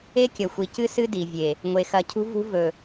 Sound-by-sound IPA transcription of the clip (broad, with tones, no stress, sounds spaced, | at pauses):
e˦ kʲ ɐ˨ xʷ i˨ c ɨ˦ s ɨ˦ d i˨ vʲ e˨ | ŋʷ e˨ x ɐ˨ cʰ ṳ˦ v ṳ˦ v ɵ˨